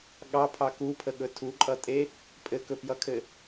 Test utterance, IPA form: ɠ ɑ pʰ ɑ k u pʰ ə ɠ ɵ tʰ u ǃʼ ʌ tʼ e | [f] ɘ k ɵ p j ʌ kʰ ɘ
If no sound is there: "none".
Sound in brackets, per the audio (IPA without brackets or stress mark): pʼ